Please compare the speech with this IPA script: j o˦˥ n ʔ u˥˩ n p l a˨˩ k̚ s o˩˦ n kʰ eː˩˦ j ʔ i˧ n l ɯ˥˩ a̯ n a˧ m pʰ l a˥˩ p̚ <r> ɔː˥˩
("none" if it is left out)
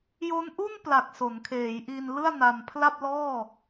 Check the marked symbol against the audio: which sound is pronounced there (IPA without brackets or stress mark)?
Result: l